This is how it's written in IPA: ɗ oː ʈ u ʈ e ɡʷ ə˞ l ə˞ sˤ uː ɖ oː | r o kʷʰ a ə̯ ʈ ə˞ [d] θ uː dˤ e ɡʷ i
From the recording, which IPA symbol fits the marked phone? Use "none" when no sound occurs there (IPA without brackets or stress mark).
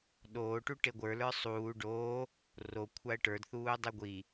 d